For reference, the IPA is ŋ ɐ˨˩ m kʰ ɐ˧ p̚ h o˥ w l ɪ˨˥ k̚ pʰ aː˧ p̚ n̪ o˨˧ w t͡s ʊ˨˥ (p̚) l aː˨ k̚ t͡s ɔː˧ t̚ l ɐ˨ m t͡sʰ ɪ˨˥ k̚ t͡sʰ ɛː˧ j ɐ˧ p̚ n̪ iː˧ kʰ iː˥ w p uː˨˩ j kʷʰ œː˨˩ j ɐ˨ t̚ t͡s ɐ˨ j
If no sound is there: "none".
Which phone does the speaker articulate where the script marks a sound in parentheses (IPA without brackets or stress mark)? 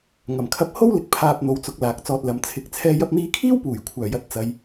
k̚